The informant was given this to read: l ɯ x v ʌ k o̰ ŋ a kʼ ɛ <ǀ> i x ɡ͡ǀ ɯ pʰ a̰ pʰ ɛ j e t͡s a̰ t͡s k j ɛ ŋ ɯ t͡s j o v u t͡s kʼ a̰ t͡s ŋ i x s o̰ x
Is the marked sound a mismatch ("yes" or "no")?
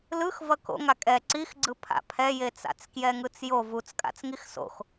no